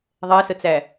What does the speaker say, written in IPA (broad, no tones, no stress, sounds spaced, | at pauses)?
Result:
ðˤ ɛ s ə t͡s æ